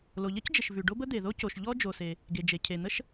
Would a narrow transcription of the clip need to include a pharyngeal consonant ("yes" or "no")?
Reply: no